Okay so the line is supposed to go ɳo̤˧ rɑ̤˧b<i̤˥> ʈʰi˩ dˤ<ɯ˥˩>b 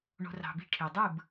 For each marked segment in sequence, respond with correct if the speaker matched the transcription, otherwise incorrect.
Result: correct, correct

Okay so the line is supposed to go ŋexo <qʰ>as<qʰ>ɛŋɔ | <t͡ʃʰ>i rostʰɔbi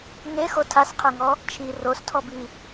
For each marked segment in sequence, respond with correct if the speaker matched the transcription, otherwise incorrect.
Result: incorrect: tʰ, correct, correct

